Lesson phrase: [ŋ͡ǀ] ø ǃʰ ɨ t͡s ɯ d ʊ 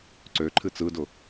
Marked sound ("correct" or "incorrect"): incorrect